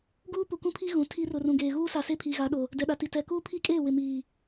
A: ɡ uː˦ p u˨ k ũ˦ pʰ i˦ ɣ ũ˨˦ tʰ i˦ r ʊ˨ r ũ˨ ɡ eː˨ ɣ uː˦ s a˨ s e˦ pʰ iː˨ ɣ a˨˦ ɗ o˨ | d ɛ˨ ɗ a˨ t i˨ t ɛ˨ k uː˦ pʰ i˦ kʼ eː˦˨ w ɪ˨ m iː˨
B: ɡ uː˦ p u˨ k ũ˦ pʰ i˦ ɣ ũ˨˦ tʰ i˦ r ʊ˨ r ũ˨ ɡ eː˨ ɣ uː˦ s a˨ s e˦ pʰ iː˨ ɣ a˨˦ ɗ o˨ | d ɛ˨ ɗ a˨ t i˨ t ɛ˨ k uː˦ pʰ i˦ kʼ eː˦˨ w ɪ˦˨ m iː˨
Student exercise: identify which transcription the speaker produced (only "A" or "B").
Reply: A